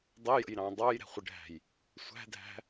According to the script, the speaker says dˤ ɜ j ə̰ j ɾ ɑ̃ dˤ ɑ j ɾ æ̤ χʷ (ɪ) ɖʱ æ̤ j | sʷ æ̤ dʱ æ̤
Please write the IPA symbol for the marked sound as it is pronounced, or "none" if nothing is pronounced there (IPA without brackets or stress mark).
ɪ